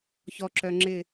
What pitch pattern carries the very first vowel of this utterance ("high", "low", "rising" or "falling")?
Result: low